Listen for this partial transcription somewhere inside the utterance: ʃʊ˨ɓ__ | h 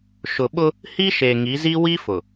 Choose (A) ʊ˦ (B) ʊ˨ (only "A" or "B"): A